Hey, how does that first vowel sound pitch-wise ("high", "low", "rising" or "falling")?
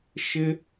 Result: high